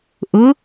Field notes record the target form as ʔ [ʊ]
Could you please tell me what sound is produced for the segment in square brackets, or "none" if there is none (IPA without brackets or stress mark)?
ʊ